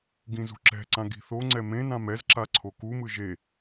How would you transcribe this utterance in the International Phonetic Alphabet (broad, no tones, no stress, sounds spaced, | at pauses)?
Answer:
ɡ ĩ z ṳ ǁ ɛ̤ ǀ ã ɡ i̤ θ o ŋ͡ǀ ɛ m ẽ n ã m ɛ z ǁ a ǀʰ o k u m ɯ ʒ e